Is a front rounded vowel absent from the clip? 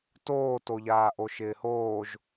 yes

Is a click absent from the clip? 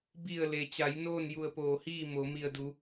yes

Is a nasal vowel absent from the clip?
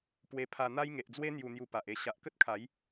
yes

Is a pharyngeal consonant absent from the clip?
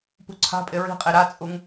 yes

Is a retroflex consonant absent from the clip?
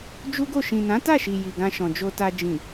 yes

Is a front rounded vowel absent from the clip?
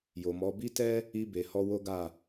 yes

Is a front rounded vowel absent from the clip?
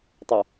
no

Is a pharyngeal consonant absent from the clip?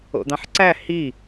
no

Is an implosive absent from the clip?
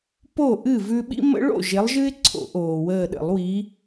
no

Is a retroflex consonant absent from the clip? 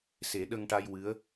no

